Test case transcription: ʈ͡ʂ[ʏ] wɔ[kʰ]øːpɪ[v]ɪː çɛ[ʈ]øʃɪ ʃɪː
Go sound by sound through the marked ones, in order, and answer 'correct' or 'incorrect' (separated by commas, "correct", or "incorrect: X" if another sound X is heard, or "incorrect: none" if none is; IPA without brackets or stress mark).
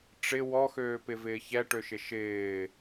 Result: incorrect: ɪ, incorrect: x, correct, correct